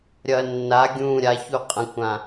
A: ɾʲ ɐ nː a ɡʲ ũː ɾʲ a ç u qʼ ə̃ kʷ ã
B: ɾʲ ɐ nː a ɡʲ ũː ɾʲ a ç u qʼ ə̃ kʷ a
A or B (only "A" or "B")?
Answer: A